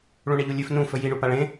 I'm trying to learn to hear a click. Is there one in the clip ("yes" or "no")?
no